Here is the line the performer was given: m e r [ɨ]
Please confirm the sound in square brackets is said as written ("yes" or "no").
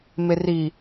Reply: no